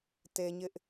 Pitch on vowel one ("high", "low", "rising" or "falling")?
high